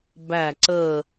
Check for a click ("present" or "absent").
present